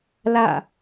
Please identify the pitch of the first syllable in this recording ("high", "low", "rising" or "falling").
falling